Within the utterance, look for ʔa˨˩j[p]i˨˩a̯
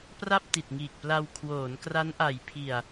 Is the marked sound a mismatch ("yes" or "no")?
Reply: yes